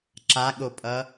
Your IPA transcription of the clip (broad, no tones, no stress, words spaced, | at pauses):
ǁaɠopʼʌ